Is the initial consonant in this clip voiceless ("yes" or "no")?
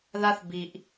no